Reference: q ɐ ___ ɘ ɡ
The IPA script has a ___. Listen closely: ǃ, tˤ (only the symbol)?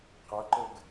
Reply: ǃ